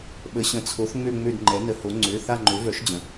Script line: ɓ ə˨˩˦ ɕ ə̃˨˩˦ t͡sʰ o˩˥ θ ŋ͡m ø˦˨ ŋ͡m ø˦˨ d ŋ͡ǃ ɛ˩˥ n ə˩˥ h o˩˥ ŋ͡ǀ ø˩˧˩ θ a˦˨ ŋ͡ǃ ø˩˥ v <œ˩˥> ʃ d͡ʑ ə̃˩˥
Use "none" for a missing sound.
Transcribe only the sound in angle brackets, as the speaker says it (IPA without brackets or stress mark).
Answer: œ˩˥